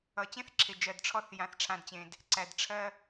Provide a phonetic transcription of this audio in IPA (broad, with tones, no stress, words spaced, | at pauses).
ʌ˨t͡ɕẽ˦θǁʰe˨d͡ʒɜ˨d ʈ͡ʂʰɔ˦θ jã˨θ ʈ͡ʂʰã˨dt͡ɕẽ˨d | ǀæ˨dʈ͡ʂʰɜ˦